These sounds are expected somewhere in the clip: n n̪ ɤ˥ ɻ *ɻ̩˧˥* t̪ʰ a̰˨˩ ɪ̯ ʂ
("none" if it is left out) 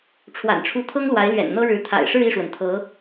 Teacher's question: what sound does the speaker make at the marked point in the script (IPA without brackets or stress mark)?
ɻ̩˧˥